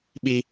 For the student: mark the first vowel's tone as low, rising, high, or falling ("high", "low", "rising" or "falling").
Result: high